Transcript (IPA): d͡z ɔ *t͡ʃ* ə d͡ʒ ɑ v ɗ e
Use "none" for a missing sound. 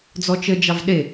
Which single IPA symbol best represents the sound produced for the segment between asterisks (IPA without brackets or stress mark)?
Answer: t͡ʃ